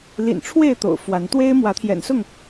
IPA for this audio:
l ḭ˨˩ n ʈ͡ʂʰ w e˥˨ ɪ̯ t̪ o̰˨˩ ʊ̯ f w a˨˦ n t̪ w e˦ ɪ̯ m w ä˨˦ t̪ʰ j ɛ̰˨˩ n s ʊ˥˨ ŋ

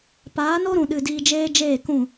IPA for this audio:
p aː˨˦ n o˦ ɾ ũ˨ ɗ ɨ˨ d iː˧ d͡ʒ eː˦ d͡ʒ eː˦˨ k ũ˦˨

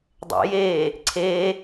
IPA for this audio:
dˤ ɛ̰ j e | ǀʰ e

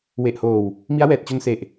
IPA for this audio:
w e˨˩ ʔ h oː˨˩ w | m i˦˥ a̯ w ɛː˨˩ t̚ t͡ɕ o˧ n s e˨˩ ʔ

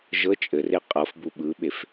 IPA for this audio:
ʒ ɤ t͡ʃʼ ɘ r e qʼ ɤ f b u ɓ ɯ ɓ e f

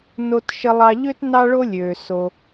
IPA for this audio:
n o˧ t ʃ ə˧ lˠ ɑ˧ ʎ ø˥ t n ɑ˥ ɭ o˥ lʲ øː˩ s o˩

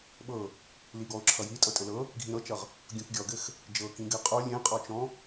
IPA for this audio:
ɓ ɤ | l i ɡ ɔ ʊ̯ ǁʰ ʌ j i tʼ ɤ tʼ ɘ l ɤ | ɡʱ ĩ ɾ ɤ t͡ʃ ʌ ʁ | ɡʲ õ k ɡʲ ɔ ɡ ɘ x | d͡ʒ ɤ k ĩ ɡ ɘ qʼ o lʲ ẽ qʼ ɔ t͡ʃ ɔ̃

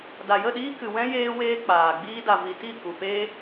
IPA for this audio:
d a˨ j ə˦˨ ɗ iː˦ k ɨ˨ w ɛ̃˦ j eː˦ w eː˦ k͡p aː˨ ɡ͡b iː˦ d a˨ v i˨ t i˦˨ k u˨ p e˦

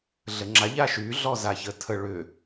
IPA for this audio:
ɮ ə ŋ͡ǁ a ʎ a ʃ y ɮ ɔ z a ç ə tʰ ə ɭ ʏ

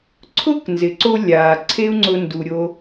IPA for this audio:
ǀʰ ʊ˥ k n z ɪ˩ ǀ o˧ lʲ aː˩ ǀʰ e˥ u̯ ŋ͡ǀ ʊ˧ n d u˩ ɾʲ o˧

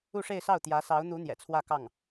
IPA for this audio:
u˥˧ ʂ e˥˧ ɪ̯ s ɑ˥˩ ʊ̯ t̪ j ä˧˥ s ɑ˧˥ ʊ̯ n̪ u˧˥ n̪ j ɛ̰˨˩ t͡sʰ w ä˥˧ k ɑ˥˩ ŋ

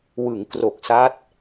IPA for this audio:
w ɯ˩˦ ŋ k r o˨˩ k̚ s a˦˥ t̚

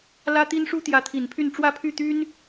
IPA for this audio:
l ä˥ t̪ i˥ n ʂ u˥ t̪ j ä˧˥ t̪ʰ i˨˩ n pʰ y˥˧ n ʈ͡ʂ w ä˥˧ pʰ y˥˩ t̪ y˥ n

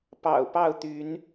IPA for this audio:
p ɑ̰˨˩ ʊ̯ p ɑ˥˨ ʊ̯ t̪ y˨˦ n

